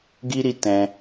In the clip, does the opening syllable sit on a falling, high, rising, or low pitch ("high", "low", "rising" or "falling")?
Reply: high